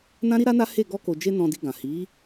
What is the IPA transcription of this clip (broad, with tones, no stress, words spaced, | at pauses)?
nã˦ɾi˦ɾa˦na˦ he˦˨ ɡɔ˧ko˨d͡ʒe˧ nɔ̃˧di˧ɡã˨ hi˨˦